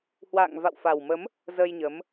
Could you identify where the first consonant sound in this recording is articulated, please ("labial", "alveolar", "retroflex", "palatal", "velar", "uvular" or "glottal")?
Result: glottal